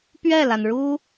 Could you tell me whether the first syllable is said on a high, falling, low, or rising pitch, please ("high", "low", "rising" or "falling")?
falling